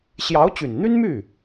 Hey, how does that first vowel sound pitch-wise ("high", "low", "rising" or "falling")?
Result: rising